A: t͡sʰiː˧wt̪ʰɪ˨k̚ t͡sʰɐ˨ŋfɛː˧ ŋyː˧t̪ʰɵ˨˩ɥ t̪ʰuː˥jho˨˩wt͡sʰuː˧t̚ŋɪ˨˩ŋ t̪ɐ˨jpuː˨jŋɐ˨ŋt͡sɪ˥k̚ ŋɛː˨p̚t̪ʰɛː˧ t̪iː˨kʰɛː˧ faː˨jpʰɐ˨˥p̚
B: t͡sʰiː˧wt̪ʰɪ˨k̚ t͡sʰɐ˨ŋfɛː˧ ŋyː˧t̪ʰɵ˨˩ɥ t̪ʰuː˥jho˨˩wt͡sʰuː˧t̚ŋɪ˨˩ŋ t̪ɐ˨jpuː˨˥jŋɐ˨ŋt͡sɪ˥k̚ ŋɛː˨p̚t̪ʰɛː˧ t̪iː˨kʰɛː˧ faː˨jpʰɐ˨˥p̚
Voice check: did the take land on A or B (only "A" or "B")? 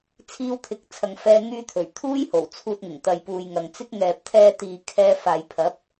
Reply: A